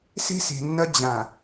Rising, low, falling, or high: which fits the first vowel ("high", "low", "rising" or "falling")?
high